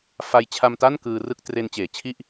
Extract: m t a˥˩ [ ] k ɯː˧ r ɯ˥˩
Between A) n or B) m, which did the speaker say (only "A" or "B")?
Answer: A